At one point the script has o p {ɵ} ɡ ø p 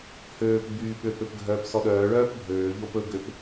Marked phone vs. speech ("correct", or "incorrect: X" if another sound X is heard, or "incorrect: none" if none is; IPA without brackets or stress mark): correct